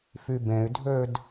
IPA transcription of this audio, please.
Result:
f y b ẽ y̯ dʱ ø d

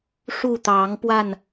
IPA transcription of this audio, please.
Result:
ʂ u˥˨ t̪ ɑ˨˦ ŋ p w a˥˨ n

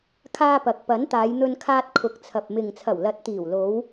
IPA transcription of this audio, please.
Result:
kʰ aː˧ p ɐ˨ k̚ p ɐ˨˥ n t̪ aː˨˧ j n̪ ɵ˧ n kʰ aː˧ t̚ kʰ ʊ˨ k̚ t͡sʰ ɐ˨ p̚ m ɪ˨ ŋ t͡sʰ ɐ˨˩ w l ɐ˨˥ t̚ t̪ iː˨˩ w l o˨˧ w

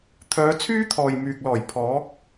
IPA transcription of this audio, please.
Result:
t̪ʰ œː˨˧ t͡sʰ yː˥ t̪ʰ ɔː˨ j m yː˨ k̚ l ɔː˨˩ j pʰ ɔː˨˥ k̚

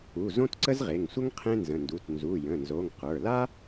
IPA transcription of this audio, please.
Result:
u˩˧˩ z õ˥ t ǀ ə˥ z ʁ e˩˧˩ ŋ sʷ ə˥ ŋ qʰ ẽ˥ n z ə̃˩˧˩ n d u˩˧˩ t n z u˩˧˩ j ə̃˩˧˩ n z o˩˧˩ ŋ q ə˞˩˧˩ l a˥

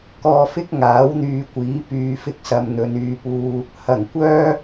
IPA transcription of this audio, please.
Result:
k ɔː˧ f ɪ˥ k̚ ŋ aː˨˥ w n̪ yː˨˧ kʷ iː˨˥ p yː˨˧ f ɪ˧ k̚ s ɐ˨ m n̪ ɵ˨˧ n yː˧ p uː˧ | h ɐ˨˩ ŋ kʷ œː˥

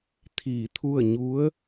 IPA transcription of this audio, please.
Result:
t̪ʰ iː˧˩ t̪ʰ u˥˨ ə̯ ɲ u˧˥ ə̯

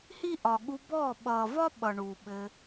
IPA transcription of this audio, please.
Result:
h i˦ ʔ ɒ˨ ɠ u˧ b ɔː˦˨ ɓ ʌː˨ v ɒ˦ ɓ ʌ˨ ɳ u˨ ɓ ɘ˧

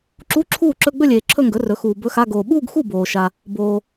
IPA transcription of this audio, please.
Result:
ǁ u˧˥˧ ǁʰ uː˥˩ ǁ ɵ˧˥˧ ɡ͡b ɵ˥˧ lʲ eː˨ ǁʰ ɵ˥˧ ŋ ɡ ɵ˩˥ r ɵ˩˥ x uː˨ b ɵ˧˥˧ x a˧˥˧ ɡ oː˨ ɓ uː˥˧ ɡ x u˥˩ b oː˨ ʃ a˨ | b oː˨

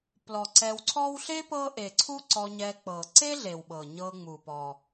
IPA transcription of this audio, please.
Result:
p l ɔ˩ ǀ ɛ˨ w ǀʰ ɔ˦ w ɬ e˥ p ɤ˦ ʔ e˩ ǀʰ u˦ ǀ ɔ˨ ɲ ɛ˨ k͡p ɤ˩ ǀ e˥ ɮ e˩ w ɓ ɤ˩ ɲ ɤ˨ ŋ͡m u˩ p ɔ˩

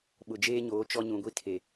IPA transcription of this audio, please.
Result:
ɓ ʊ˨ d͡ʒ eː˦ ɲ oː˨˦ t͡ʃ ɔ˦ ɲ ũ˨ ɡʷ i˦ tʰ e˨

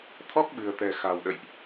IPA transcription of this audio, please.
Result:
t̪ʰ ɔ˦˥ k̚ ɓ ɨ̤˨˩ ə̯ t̪ ɛ̤˨˩ x a̤˨˩ w ɗ ə̰˧˨ j ʔ

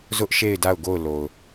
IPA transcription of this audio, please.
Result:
z ʊ˦ ʔ ʃ e˦˨ ɪ̯ d a˦˨ ʊ̯ ɡ o˦˨ ʊ̯ l o˨ ʊ̯

